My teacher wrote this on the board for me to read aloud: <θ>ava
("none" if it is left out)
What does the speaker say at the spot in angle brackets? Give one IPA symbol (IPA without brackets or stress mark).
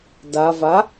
d